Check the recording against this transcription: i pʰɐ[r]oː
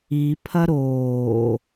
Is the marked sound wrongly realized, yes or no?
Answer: yes